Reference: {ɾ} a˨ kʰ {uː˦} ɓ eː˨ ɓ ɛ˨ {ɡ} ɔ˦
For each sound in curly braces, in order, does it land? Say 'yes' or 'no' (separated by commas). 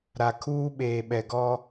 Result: yes, yes, yes